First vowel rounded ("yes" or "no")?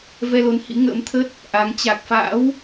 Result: no